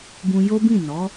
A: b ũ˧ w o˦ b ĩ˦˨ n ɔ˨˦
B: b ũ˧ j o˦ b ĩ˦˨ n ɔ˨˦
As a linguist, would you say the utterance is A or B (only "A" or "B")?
B